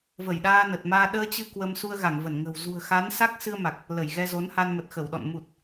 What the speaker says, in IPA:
və˧˩jɗaː˧nə˨˩t̚maː˧ ɗəː˧t͡ɕɨ˧ kwə˧m su˧ə̯ɣa˧˩ŋvə˧˩nŋə̤˨˩w zṳ˨˩ə̯xa˨˦n sa˦˥k̚sɨ˧ə̯ma˨˩k̚ | lə˧˩jɣɛ˧zo˨˦nha˧n mə˨˩t̚xə˧˩wɗɔ̰˧˨n mu˨˩t̚

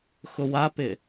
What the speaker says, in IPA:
xʊwapɪ

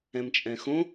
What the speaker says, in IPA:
ɛ̃mt͡ʃʼɛ̃xõ

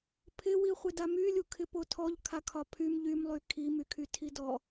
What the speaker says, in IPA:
pʰɪwi χʷɪdamylʲu kʰɪpotʰɔʎ kʰakʰɒpʰym ʎymlˠy kʰimykʰy tʰidɔ

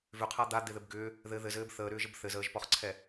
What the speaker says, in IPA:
vʏqʰa d̪ad̪eðɘb ɡʏː | ðɘ ðɘzɘːb θəːɾʏːʒəb θɘzəːʒpɔχǀʰɛ

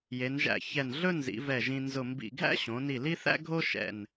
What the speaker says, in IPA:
je˩˧nʒæ̰˧˩çɛ˧˩n ɮɵ˥nzḭ˩˧ vɛ˧˩ʒĩ˧ nzʊ˧˩mbḭ˧˩ ɡʱæ̰˥ɕõ˩˧ni˧˩ li˥θæ̰˥ɡʱo˥ ʃɛ̰˧˩n

